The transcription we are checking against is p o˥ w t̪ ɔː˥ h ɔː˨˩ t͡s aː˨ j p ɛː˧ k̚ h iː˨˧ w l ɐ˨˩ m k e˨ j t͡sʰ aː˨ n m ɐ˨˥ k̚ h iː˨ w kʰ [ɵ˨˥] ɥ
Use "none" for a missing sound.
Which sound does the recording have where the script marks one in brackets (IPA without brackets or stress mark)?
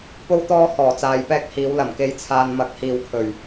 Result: ɵ˨˩